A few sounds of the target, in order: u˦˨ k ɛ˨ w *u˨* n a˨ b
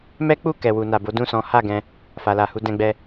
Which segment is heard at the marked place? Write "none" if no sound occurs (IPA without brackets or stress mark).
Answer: u˨